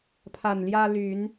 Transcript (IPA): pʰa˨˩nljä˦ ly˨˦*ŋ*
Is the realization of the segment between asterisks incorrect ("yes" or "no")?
yes